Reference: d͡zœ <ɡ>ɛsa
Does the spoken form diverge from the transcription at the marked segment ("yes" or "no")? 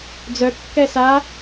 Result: yes